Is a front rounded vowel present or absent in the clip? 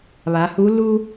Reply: absent